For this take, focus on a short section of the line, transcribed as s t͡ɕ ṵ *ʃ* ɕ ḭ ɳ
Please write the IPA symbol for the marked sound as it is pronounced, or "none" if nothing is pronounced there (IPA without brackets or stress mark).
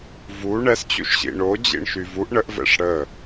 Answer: ʃ